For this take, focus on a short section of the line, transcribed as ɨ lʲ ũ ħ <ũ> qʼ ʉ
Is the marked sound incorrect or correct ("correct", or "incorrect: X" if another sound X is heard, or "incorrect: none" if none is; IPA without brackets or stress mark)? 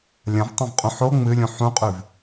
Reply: correct